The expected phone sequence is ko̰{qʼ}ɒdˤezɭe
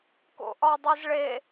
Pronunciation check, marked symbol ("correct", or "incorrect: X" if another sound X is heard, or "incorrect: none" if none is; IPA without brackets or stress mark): incorrect: ʔ